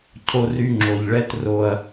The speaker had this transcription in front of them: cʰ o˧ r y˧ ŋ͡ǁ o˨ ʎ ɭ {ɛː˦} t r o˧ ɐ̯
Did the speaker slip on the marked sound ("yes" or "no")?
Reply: yes